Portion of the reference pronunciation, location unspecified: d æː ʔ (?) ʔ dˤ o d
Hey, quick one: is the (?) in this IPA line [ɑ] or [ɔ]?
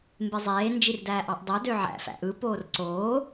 ɑ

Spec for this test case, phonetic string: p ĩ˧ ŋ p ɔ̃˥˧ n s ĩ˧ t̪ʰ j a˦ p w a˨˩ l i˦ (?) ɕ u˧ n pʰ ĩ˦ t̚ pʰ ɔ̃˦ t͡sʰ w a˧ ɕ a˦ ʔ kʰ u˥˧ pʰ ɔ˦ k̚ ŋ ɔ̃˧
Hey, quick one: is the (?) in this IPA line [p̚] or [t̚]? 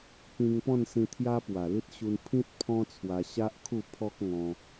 t̚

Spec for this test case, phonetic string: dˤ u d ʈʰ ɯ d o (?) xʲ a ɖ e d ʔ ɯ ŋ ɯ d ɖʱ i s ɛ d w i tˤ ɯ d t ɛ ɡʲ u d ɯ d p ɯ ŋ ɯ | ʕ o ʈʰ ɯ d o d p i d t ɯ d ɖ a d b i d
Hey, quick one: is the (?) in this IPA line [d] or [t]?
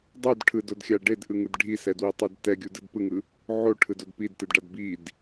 d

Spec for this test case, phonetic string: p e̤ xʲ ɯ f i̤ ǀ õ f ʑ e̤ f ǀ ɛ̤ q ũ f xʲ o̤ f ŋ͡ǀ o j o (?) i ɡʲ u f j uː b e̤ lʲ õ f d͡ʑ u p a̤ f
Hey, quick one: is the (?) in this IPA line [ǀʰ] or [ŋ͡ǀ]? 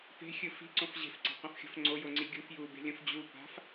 ŋ͡ǀ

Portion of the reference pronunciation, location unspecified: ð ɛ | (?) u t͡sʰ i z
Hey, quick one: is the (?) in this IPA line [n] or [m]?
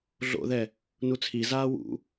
n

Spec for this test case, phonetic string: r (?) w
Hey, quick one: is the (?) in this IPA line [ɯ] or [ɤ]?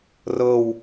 ɤ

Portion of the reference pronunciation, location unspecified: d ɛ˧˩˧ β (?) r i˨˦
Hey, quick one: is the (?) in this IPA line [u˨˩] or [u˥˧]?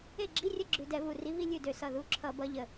u˨˩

